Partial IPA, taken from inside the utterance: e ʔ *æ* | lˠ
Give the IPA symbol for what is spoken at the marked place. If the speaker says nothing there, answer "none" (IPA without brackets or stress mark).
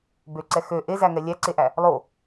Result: æ